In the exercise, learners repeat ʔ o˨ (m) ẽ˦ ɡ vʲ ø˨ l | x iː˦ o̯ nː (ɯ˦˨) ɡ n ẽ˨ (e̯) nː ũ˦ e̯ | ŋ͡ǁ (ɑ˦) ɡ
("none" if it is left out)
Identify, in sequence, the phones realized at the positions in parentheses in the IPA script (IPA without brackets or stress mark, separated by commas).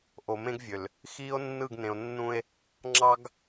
m, ɯ˦˨, o̯, ɑ˦